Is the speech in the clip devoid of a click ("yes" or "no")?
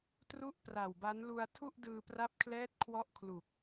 yes